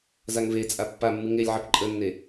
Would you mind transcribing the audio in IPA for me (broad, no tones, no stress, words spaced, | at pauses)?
zaŋvet͡sʼa pːamːɨŋ elʲʕɐp ǃʼənːe